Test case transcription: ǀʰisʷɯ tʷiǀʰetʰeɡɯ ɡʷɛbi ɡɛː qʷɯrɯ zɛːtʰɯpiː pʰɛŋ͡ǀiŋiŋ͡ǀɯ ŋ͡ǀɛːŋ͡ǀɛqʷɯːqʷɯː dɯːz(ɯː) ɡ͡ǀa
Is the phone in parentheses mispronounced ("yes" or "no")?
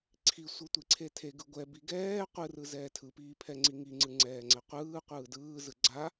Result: yes